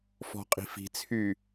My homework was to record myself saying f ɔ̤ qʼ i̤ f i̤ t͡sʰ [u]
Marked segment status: incorrect: y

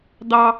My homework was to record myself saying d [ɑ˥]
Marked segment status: correct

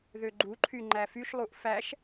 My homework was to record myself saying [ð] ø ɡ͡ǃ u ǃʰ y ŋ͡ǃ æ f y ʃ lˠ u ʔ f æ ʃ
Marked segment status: correct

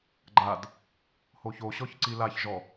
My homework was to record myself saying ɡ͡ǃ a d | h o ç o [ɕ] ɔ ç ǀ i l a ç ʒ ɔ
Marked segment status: correct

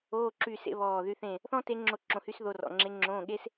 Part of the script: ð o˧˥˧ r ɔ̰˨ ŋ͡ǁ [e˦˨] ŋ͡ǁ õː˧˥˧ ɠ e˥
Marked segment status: incorrect: e˧˥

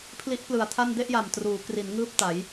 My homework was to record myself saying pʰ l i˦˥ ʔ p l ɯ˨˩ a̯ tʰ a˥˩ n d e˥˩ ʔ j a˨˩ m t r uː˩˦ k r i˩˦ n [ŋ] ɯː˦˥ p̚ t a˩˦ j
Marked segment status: correct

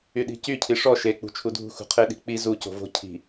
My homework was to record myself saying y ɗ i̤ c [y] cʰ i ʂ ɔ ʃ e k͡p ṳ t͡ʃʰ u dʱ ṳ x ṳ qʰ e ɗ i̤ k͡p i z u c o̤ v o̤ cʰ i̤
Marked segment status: correct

